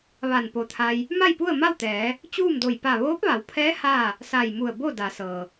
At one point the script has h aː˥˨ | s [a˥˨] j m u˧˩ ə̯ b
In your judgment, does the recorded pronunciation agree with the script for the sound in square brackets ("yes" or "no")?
no